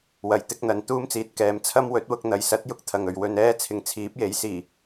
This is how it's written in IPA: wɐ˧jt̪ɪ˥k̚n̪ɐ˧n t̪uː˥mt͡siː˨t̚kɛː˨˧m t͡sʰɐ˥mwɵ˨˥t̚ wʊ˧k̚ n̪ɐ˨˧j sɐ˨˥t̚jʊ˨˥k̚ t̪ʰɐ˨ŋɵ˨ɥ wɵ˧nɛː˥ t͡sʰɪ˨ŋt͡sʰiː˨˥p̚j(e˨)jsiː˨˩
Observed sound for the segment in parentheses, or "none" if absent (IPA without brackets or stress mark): e˨˥